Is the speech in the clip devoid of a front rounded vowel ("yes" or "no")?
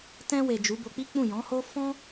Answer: yes